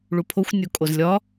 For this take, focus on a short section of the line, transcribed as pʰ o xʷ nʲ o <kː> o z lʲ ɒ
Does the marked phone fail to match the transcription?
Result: yes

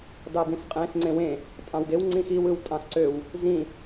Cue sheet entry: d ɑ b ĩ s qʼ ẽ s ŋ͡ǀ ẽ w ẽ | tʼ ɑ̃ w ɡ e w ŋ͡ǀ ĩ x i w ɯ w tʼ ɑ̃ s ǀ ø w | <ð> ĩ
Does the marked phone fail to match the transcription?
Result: yes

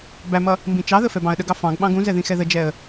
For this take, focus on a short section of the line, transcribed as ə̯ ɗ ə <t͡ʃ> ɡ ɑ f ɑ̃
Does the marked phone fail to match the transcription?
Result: yes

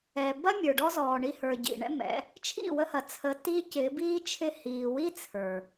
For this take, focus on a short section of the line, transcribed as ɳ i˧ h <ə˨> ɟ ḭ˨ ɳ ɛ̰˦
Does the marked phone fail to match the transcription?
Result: yes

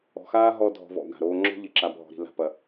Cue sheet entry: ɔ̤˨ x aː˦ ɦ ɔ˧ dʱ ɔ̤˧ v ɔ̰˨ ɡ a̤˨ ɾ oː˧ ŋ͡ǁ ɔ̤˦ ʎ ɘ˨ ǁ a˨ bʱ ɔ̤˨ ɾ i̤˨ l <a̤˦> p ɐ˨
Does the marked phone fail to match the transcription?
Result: yes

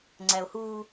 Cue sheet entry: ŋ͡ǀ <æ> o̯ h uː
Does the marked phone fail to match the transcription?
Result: no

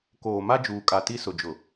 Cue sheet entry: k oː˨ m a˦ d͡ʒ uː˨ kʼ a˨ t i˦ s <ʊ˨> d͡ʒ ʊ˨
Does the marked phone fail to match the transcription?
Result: no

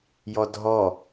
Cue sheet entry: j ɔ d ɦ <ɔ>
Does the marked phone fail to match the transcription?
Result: no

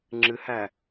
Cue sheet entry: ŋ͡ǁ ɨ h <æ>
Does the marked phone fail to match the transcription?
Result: no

